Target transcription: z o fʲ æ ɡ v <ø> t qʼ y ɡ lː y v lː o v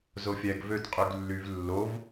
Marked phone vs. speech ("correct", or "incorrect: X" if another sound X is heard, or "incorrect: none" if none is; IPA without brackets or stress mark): correct